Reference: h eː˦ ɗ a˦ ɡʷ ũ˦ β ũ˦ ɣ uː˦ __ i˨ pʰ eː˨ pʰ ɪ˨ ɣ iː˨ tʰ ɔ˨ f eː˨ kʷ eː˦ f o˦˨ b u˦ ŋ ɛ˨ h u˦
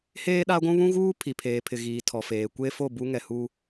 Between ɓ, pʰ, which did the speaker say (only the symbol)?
pʰ